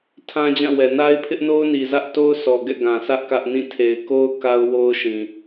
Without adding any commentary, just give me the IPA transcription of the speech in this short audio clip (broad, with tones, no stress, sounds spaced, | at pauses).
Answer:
tʰ ã˦ d͡ʑ ã˦˨ w ɛ˨ n a˦ ɪ̯ pʰ ɪ˦ ʔ n o˦ ʊ̯ n i˨ z ä˦ ʔ t o˦ ʊ̯ s ɔ˨ ɡ ɛ̰˦˨ ɡ ã˨ s ä˦ ʔ k ä˦ ʔ n ĩ˦˨ tʰ e˨ ɪ̯ k o˦ ʊ̯ k a˦ ʊ̯ w o˦ ʊ̯ ʃ ĩ˨